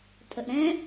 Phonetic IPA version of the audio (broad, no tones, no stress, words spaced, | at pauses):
tʼəʔɾɛ̃